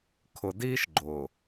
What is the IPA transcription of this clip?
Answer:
kʰ ʊ˨ d iː˦ ʃ ɡ͡ǃ ʊː˨

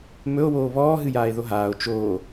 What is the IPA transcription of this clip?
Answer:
m ɵ o̯ w oː β ɔː ɦ ɨ j aː e̯ ð o ɦ aː o̯ t͡ʃ oː

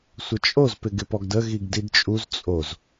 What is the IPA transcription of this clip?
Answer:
sʷ ə t͡ʃʼ o z p ɪ ɡ ɪ p ɔ ɡ d ə ɣ i ɡ d i d t͡ʃʼ u z t͡sʼ o z

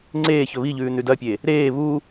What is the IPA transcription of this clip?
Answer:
ŋ͡ǀ eː ç ɵ β i ʎ ʉː n ʉ d ɐ pʲ e | ɾ eː β u

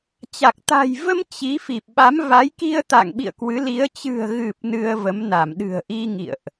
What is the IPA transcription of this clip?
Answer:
t͡ɕ a˨˩ k̚ t̪ a̤˨˩ j v ə˧ m t͡ɕ i˨˦ f i˨˩ p̚ ɓ a˨˦ m v a˨˦ j k i˧ ə̯ t̪ a̰˧˨ ŋ ɓ ḭ˧˨ ə̯ k w ɨ˨˦ l i˨˦ ə̯ t͡ɕ ɨ̤˨˩ ə̯ ɣ ɨ˨˩ p̚ n ɨ˧ ə̯ v ə˨˦ m n a˧˩ m ɗ ɨ̤˨˩ ə̯ ʔ i˧ ŋ ḭ˧˨ ə̯ ʔ

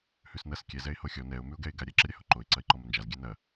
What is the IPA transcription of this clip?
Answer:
h ʉ s n ɐ s kʲ ɛ z ɛ ɪ̯ h o xʲ ɔ n ɛ ʊ̯ m ʉ ʊ̯ ɡ ɛ ɪ̯ ɡ a ɾʲ ɛ ǁ ə ɾʲ a h o ǃ o ɪ̯ ǀ ɐ ɪ̯ ǃ ɔ m ɐ n d͡ʒ a z ɡʲ ɛ n ɐ

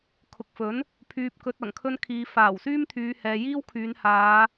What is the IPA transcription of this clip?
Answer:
kʰ ʊ˨ k̚ f ɵ˨˥ n | pʰ yː˨ p̚ k ɵ˨ t̚ ɐ˨˩ ŋ kʰ ɵ˧ n kʰ iː˨ f aː˨˩ w s yː˥ m t̪ʰ yː˨˧ h ɛː˨ j iː˥ w kʰ yː˨˧ n h aː˨˧

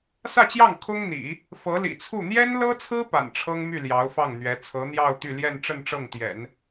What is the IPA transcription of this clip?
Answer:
s ä˥˧ t͡ɕ j ɑ˥˩ ŋ kʰ ʊ˥ ŋ n̪ ḭ˨˩˦ | f ɤ˧˥ l ḭ˨˩ t͡sʰ u˥˩ n̪ j ɛ˥ n l ɤ˥ t͡sʰ ɹ̩˥ p a̰˨˩ n ʈ͡ʂʰ ɤ˥ ŋ m y˥˩ l j ɑ˧˥ ʊ̯ f ɑ˥˩ ŋ n̪ ɥ ɛ˧˥ t͡sʰ ɤ˧˥ n̪ j ɑ˥˧ ʊ̯ t̪ y˥˧ l j ɛ˥˧ n ʈ͡ʂ ə˥˧ n ʈ͡ʂ ɤ˥˩ ŋ t̪ j ɛ̰˨˩˦ n

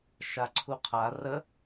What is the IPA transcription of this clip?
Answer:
ʃ a ǀʰ u qʰ a r ə

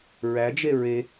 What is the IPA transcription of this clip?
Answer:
ɹ æ d͡ʒ e ɹ e

